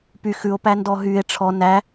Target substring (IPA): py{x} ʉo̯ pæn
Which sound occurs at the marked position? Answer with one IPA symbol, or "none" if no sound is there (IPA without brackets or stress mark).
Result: x